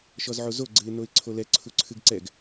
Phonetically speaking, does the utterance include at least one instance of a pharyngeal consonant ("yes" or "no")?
yes